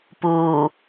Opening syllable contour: low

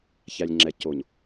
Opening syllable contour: low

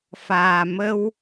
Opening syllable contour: low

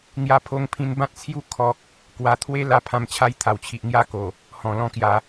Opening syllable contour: high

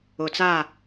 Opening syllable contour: low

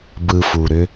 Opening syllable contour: low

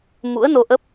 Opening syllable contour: rising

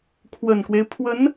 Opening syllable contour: low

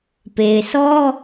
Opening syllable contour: low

